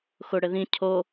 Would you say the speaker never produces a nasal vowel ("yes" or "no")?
no